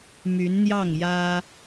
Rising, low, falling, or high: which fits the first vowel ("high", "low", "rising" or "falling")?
rising